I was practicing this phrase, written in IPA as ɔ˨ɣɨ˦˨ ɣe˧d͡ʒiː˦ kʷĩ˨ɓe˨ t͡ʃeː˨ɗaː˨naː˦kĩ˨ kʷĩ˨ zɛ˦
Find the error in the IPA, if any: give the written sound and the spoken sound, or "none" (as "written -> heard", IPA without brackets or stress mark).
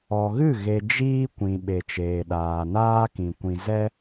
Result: none